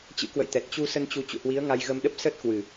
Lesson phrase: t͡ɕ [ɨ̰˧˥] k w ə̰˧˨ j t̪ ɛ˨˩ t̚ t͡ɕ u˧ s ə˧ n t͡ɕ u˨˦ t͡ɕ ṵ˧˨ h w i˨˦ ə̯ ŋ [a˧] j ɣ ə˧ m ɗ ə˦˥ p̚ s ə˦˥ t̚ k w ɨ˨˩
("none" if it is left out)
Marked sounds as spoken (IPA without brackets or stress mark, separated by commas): ɨ̰˧˥, a˧